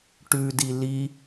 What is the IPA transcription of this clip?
ʈ ʉ d i l i

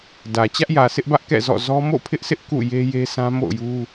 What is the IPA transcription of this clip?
d ä˨ t͡ɕ ä˦ ʔ j ä˨ sʰ ɪ˦ ʔ b ä˦ ʔ k ɛ̰˦˨ z ɔ̰˦˨ z ɔ˦ m o̰˦˨ pʰ ɪ˦ ʔ sʰ ɪ˦ ʔ k ṵ˦˨ j e˦ j e˦ sʰ ã˦ m o̰˦˨ ʊ̯ j u˦

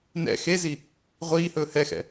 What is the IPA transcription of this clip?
n ɛ̰ x e z i | ʁʷ iː h ɵː h ɛ x ɛ̰

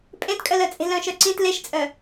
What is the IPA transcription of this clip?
pʼ ẽ t kʼ œ l œ t͡sʼ e̤ l œ̃ ʃ œ ǀ ĩ t l e ʃ t͡sʼ œ

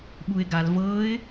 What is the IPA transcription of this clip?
ɓ u ɪ̯ ɡ a l v ɤ ɪ̯

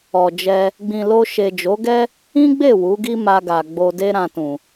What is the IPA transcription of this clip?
ɔ˨ d͡ʒ ɛ˧ | ɡ͡b ĩ˨ l o˧ ʃ e˨ d͡ʒ o˨˦ ɡ ɛ˦ | ĩ˦ ɡ͡b e˦˨ w u˨˦ ɡ i˦ m a˧ ɡ a˨ ɡ͡b o˧ d e˦ ɾ ã˧ t ũ˨

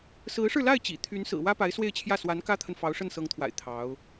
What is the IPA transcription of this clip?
s ɹ̩˧˥ ʂ ɻ̩˧ l a˥˩ ɪ̯ t͡ɕ ḭ˨˩ t̪ʰ y˧˥ n s ɹ̩˨˩ w ä˥ p a˧˥ ɪ̯ s w e˥˧ ɪ̯ t͡ɕʰ j ä˥˩ s w a˧˥ n k ä˥ t̪ʰ ə˨ n f ɑ˧˥ ʊ̯ ʂ ə˥˩ n s ɤ˧˥ ŋ t̪ʰ w a̰˨˩ ɪ̯ t̪ʰ ɑ˧˥ ʊ̯

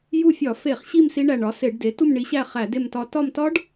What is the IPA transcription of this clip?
j u˦˨ fʲ ɒ˧˩˧ f e˧˩˧ χ ɕ i˦˨ m s i˦˥ ɳ æ˦˨ ɳ ɒ˩˥ s e˧˩˧ ɖ d e˩˥ t u˦˨ m ɳ i˩˥ ɕ æ˦˨ χ æ˧˩˧ d e˦˨ m t ɒ˦˨ t ɒ˦˨ m t ɒ˦˥ ɖ

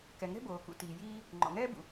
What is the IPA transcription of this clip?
k ɛ˩ ŋ ɛ̤˥ b oː˩ k ṵ˩ t iː˩ j iː˥ | ŋ͡ǃ ɔ̰˩ ŋ ɛː˥ b ṵ˩

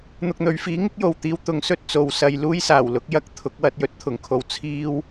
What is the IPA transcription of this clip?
n̪ ʊ˨ k̚ n̪ ɵ˨˧ ɥ f iː˨˥ ŋ ɪ˥ k̚ j o˨ w t̪ iː˧ w t̪ ʊ˨ ŋ s ɵ˥ t̚ t͡s o˨˧ w s ɐ˨˧ j l uː˥ j s aː˨˩ w l ʊ˨˥ k̚ j ɐ˥ k̚ t̪ʰ ʊ˨˥ k̚ w ɐ˨˥ t̚ j ɵ˨˥ t̚ t̪ʰ ʊ˨ ŋ kʰ o˧ w t͡sʰ iː˥ w

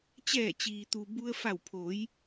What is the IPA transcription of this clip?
t͡ɕ ɛː˧˩ t͡ɕ iː˩ t̪ u˩ b u˧ ə̯ f a˧˩ w pʰ o˩˧ j

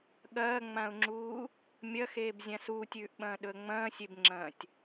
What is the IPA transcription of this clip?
ɠ ɐː ŋ͡m ã ʊ̯ ŋ͡ǁ uː | mʲ ɐ x eː b zʲ ã s uː tʲ ʉː ʔ ɓ ɐ̃ː ɗ ɵ ə̯ ŋ͡m ɐ̃ː sʲ e b ŋ͡ǁ ɐ̃ː tʲ

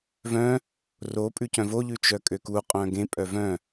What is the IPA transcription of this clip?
v œ̃ | r o pʼ ʉ c œ̃ v o ʎ ʉ t͡ʃ œ kʼ ø k u qʼ œ̃ ɡ ẽ pʼ œ v œ̃

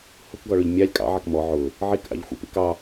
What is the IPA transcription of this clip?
h ʊ k ɡ ɔ ɭ ʊ ʎ mʲ ɑ lʲ kʼ ɑ̰ ʕ ɑ k m ɔ ʕ ʊ | ʕ i k ʔ ɑ̰ ʎ xʷ ḭ p ḭ k ɑ

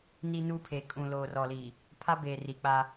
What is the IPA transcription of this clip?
n i˦ n u˦ pʰ e˨ kʼ ũ˨ l oː˨ r ɔ˨ l i˨ | pʰ a˦ b eː˨ r i˨ k͡p a˦

